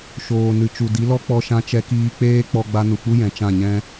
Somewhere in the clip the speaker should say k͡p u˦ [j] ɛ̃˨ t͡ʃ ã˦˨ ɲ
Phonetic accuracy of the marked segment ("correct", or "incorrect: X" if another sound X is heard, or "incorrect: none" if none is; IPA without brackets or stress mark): correct